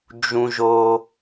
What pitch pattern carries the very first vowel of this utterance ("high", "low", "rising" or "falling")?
low